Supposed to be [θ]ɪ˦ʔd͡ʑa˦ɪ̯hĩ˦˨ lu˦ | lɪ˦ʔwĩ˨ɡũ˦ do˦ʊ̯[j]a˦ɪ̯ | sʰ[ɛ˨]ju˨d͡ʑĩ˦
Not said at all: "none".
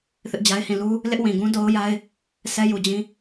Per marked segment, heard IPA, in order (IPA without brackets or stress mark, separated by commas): θ, j, ɛ˦